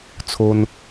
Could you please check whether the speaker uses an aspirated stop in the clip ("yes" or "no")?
yes